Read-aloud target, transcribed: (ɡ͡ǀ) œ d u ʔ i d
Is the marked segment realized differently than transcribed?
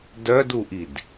yes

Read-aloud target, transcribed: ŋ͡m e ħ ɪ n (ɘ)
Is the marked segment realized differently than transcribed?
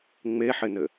no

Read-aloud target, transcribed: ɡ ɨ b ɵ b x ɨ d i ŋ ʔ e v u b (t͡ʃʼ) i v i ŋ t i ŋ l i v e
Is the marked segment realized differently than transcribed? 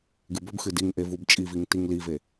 no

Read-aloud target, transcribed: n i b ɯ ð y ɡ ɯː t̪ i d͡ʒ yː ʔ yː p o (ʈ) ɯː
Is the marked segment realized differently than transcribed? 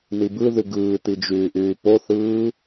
yes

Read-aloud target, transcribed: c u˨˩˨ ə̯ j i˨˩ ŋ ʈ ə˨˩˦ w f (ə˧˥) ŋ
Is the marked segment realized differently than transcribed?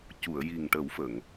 yes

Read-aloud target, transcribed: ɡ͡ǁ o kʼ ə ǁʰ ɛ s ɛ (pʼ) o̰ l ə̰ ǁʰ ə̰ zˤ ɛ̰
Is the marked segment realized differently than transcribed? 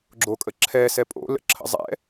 no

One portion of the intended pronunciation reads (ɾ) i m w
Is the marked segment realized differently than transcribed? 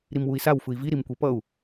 no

